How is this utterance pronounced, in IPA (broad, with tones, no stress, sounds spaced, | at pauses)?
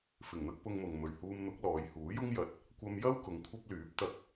f ɪ˨˩ ŋ n̪ ɐ˥ k̚ p ʊ˧ ŋ m ʊ˨ ŋ m ɵ˨˩ ɥ h uː˧ m n̪ ʊ˨˥ k̚ l ɔː˨˧ j h uː˨˥ j ʊ˥ ŋ j ɐ˨ t̚ | kʷ ɐ˧ m j ɐ˥ w k ʊ˨˧ ŋ kʷʰ ɐ˥ p̚ l yː˨˥ p̚ t̪ ɐ˧ k̚